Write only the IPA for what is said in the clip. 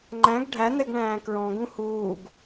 ŋ͡ǃ æ̃ ɡ ɖʱ æ n̪ ɛ ɡ ɳ æ̃ː k ɹ ɔ̃ ɡ ũ h uː ɡ

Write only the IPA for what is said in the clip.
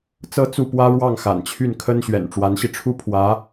t͡s ɤ˥ t͡s u˥˩ p w ä˥ ɻ w ɑ˥˩ ŋ x a̰˨˩ n t͡ɕʰ y˥˩ n kʰ ə˥ n ɕ ɥ ɛ̰˨˩ n ʈ͡ʂ w a˧˥ n ɕ i˧ ʈ͡ʂʰ u˥ pʰ w ä˧˥

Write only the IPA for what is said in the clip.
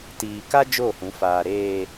t iː˨ k a˦ d͡ʒ o˦˨ h ũ˨˦ f aː˨ ɾ eː˨

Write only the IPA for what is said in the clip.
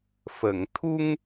f ə˨˩˨ ŋ t̪ʰ u˧ ŋ

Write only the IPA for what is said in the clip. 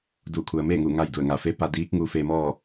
d u˧˩ kʰ u˩ ə̯ m eː˥˨ ŋ u˧˩ ŋ a˥˨ j d u˧˩ ə̯ ŋ a˧˩ f e˧˥ p a˧ d iː˧˥ k̚ ŋ u˧ f e˧ m ɔː˥˨

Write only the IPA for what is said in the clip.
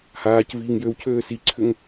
h aː c v iː ŋ j ø w cʰ øː s i ǀʰ ʏ ŋ

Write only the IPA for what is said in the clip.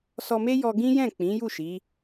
s ɔ˧ m e˦ j ɔ˧ ɡ ĩ˦ j ɛ̃˦˨ k͡p ĩ˨˦ j u˦˨ ʃ i˨˦

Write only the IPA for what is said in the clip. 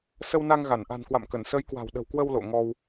s ə˧ w n a˧ ŋ ɣ a˧˩ n ʔ a̤˨˩ n k w a̰˧˨ m k ə˧˩ n s ə˨˦ j k w a̤˨˩ w ɗ ə̤˨˩ w k w ə˧ w l o̰˧˨ ŋ ɔ˧ w

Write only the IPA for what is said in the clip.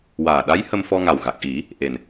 w aː˨˩ ɗ a˧˥ j h ə˧ m f ɔ˧ ŋ a˨˩ w ɣ a˨˩ k̚ ʔ i˨˩˦ | ʔ e˨˩ n

